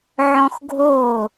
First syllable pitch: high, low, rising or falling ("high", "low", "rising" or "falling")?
high